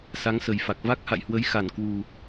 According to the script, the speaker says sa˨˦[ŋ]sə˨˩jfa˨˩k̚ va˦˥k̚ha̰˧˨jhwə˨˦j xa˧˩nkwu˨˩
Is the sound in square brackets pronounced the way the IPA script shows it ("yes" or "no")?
yes